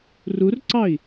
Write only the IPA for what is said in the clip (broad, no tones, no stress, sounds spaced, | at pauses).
r u r ǀ ɑ i̯